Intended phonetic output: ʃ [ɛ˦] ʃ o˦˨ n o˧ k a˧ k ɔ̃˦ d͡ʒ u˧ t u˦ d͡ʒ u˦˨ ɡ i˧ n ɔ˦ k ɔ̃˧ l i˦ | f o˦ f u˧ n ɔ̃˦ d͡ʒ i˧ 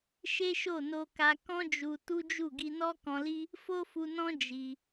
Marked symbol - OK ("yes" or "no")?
no